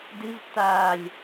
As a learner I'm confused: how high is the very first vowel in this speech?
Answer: high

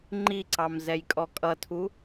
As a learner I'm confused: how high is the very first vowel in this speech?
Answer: high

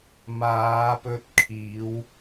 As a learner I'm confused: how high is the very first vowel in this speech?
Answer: low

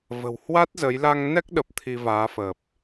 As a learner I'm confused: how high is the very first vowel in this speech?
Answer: mid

